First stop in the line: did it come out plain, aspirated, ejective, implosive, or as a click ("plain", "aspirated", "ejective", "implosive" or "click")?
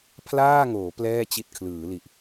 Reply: aspirated